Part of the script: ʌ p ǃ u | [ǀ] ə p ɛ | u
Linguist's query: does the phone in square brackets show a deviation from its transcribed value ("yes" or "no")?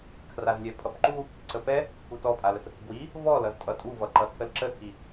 no